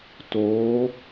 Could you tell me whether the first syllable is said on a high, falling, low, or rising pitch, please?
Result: rising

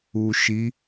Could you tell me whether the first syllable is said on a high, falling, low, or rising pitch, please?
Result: low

